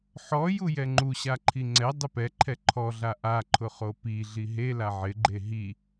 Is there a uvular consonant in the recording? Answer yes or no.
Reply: yes